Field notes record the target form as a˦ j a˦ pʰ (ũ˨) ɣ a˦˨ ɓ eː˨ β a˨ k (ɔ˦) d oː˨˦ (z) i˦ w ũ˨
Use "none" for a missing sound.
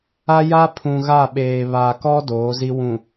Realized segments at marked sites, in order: ũ˨, ɔ˦, z

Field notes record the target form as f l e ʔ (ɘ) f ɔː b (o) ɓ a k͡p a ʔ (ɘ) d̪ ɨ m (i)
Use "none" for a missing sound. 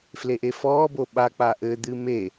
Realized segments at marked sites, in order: e, o, ɘ, e

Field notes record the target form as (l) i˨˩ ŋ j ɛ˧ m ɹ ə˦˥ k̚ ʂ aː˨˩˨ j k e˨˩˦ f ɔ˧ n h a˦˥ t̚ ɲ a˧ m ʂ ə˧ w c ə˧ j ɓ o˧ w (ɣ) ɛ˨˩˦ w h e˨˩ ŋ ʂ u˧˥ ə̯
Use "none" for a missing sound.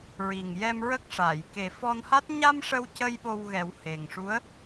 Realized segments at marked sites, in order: ɹ, ɣ

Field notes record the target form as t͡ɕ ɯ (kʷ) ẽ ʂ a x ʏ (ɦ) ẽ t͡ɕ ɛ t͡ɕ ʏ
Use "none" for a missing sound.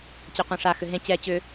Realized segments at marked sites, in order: qʷ, ɦ

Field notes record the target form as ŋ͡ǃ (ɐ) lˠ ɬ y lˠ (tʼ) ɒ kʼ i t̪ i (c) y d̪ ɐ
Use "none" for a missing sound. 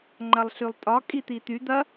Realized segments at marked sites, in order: ɐ, tʼ, t̪

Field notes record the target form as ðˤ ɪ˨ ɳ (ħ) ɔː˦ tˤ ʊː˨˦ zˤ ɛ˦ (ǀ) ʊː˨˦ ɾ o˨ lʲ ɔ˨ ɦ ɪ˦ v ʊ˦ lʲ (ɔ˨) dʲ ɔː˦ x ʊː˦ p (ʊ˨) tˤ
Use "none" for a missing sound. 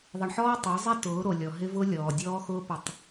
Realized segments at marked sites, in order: ħ, t, ɔː˨, ʊ˨

